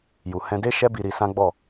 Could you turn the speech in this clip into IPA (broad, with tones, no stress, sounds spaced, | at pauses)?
j u˨ h ɛ̃˧ d e˦ ʃ ɛ˦ b i˧ ɾ i˧ s ã˦ ɡ͡b ɔ˦˨